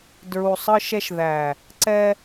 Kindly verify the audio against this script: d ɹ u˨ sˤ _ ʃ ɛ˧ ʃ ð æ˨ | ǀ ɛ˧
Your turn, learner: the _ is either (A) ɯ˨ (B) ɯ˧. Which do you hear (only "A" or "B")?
B